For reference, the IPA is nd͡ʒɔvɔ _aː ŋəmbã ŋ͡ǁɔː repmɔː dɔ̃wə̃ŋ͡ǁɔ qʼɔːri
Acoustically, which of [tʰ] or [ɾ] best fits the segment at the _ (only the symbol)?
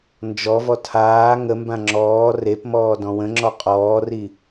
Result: tʰ